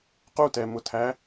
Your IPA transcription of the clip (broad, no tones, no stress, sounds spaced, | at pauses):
q u t ɛ m ʊ tʰ æ